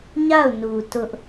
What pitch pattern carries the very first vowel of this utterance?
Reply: falling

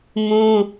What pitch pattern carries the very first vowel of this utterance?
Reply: high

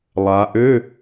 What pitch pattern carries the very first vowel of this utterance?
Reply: rising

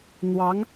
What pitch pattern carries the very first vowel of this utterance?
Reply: rising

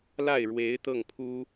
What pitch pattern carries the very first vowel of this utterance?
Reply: falling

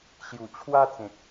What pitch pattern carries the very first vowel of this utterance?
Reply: low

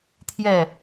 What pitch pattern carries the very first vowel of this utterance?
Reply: falling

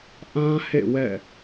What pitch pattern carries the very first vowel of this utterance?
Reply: high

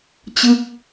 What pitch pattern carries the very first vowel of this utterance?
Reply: falling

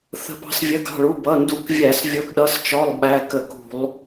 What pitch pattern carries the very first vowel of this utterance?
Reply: rising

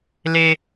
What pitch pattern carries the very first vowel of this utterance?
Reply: high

